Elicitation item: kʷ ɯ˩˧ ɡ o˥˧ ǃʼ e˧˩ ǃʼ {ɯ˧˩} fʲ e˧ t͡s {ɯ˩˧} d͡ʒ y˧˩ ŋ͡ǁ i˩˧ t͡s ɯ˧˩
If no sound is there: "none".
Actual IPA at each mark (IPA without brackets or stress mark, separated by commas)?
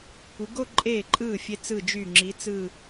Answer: ɯ˧˩, ɯ˧˩